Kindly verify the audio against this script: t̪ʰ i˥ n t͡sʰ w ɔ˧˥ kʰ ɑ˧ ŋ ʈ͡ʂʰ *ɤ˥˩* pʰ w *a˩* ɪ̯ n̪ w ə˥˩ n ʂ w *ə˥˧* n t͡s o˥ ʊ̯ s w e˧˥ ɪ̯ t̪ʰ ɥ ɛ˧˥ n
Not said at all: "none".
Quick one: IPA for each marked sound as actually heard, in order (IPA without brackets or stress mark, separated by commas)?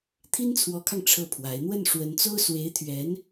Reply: ɤ˥˩, a˧˥, ə˧˥